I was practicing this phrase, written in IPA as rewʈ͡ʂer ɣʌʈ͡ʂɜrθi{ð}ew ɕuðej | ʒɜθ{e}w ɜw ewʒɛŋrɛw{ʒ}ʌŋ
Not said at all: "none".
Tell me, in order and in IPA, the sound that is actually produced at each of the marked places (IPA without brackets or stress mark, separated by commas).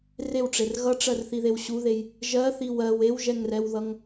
ð, i, ð